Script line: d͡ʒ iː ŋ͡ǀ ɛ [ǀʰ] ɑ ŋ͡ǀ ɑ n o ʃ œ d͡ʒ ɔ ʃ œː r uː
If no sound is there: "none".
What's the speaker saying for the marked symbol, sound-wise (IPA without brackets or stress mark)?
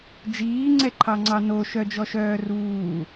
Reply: ǃʰ